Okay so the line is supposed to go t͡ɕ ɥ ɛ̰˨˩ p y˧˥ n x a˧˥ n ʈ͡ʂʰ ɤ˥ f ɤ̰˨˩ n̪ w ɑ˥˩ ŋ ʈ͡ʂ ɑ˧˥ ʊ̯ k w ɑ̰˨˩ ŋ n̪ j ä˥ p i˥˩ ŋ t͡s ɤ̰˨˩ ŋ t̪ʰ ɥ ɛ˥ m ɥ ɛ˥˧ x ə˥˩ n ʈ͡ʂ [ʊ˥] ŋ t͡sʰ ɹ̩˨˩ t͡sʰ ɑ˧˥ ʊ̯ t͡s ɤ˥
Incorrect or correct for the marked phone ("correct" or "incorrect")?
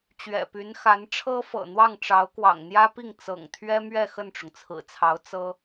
incorrect